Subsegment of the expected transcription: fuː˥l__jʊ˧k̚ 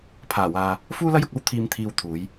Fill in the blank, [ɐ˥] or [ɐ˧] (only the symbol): ɐ˥